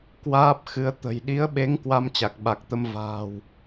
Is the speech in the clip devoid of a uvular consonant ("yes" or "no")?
yes